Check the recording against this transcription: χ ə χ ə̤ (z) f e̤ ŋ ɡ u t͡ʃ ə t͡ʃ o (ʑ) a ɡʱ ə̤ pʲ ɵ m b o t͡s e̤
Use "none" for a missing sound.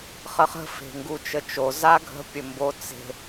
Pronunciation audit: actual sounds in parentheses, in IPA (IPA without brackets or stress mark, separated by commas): none, z